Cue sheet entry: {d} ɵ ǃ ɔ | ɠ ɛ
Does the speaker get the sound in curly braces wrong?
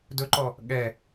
no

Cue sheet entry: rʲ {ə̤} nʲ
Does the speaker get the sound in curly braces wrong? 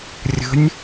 no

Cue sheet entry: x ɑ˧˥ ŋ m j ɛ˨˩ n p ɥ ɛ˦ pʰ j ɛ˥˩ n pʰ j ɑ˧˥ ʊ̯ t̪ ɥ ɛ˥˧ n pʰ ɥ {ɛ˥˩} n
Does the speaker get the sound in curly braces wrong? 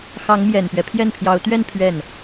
no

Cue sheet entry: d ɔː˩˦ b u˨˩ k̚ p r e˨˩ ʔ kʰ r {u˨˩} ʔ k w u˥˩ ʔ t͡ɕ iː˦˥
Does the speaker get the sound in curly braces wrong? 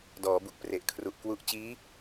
no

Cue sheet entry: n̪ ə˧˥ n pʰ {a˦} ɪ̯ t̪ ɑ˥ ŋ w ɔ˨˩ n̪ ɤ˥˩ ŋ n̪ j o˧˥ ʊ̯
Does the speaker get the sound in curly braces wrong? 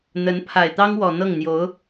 yes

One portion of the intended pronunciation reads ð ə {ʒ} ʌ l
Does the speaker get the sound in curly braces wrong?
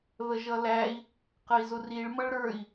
no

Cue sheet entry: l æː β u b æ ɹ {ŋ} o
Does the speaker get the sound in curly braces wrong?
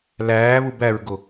yes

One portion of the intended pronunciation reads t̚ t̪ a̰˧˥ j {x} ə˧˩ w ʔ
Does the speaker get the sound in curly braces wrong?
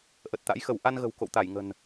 no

